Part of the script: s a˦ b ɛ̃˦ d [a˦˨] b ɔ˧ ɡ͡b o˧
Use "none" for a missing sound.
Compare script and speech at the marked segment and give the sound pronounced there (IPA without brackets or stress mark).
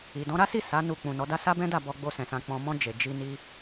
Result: a˦˨